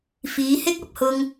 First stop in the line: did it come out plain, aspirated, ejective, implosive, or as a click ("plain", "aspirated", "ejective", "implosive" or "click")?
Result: plain